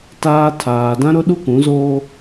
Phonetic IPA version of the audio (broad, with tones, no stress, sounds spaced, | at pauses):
t aː˦ tʰ aː˨ d ã˦ ɾ ʊ˦ ɗ u˦ k ũ˨˦ z oː˦